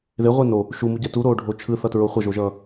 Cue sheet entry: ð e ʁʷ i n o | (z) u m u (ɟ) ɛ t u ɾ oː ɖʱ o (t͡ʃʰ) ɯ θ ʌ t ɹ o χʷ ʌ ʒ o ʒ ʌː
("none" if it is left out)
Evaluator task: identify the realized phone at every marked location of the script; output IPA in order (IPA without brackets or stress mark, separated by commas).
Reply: ʃ, ɟ, t͡ʃʰ